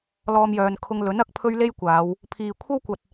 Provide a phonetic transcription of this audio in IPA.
l ɔː˧ m j œː˨ n kʰ ʊ˧ ŋ l ɵ˨˥ n ɐ˨˥ k̚ pʰ ɵ˥ ɥ l e˥ j kʷ aː˨˧ w | pʰ iː˨ kʷʰ ɐ˥ w kʷ ɐ˨ t̚

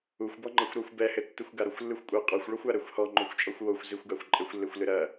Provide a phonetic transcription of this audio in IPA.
u xʷ b ɔ ŋ͡ǃ ɐ xʷ ɾ ɔ xʷ b ɛ h ɘ tː ɨ xʷ ɡ a ɾ o xʷ lː ɨ xʷ kʷʼ ɐ qʼ ɔ xʷ ɭ ɔ xʷ a ɾ ɛ xʷ h ɔ ŋ͡ǃ o xʷ t͡ʃʼ ɔ xʷ w o xʷ z i xʷ ɡ a xʷ ǃʼ ɘ xʷ lː e xʷ l ɨ ɾ ɐ

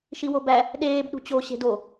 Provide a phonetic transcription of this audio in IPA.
ʃ i w o b æ | ɗ eː b ɗ ṳ t͡ɕ o ɕ e̤ d o

